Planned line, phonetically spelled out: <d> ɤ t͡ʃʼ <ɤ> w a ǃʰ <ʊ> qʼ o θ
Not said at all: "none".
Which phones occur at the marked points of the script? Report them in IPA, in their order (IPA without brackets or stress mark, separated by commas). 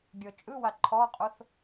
ɡʲ, ɯ, ɔ